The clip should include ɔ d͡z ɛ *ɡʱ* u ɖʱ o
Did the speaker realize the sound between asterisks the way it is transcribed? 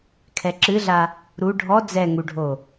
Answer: no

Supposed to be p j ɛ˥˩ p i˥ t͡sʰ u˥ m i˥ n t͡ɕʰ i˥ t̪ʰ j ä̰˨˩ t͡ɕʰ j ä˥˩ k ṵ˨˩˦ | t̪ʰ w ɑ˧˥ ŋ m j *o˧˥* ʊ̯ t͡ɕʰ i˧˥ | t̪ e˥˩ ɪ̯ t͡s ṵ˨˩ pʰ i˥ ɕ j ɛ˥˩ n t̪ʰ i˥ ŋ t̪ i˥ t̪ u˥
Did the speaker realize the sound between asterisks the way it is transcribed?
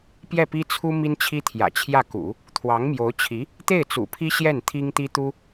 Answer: yes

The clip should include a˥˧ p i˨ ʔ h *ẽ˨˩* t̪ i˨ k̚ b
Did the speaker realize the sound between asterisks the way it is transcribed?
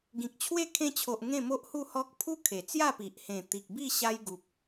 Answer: yes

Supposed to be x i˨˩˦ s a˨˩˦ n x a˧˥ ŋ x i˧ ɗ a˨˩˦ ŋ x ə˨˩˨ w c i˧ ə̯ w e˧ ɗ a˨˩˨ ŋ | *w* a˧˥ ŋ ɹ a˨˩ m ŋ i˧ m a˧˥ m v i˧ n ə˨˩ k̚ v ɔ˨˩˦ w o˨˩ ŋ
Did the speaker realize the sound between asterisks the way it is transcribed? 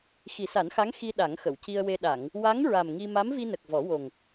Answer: yes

